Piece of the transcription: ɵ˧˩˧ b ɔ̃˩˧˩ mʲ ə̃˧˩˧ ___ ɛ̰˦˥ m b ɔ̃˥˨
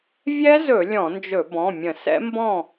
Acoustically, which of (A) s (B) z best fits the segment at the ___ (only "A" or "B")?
A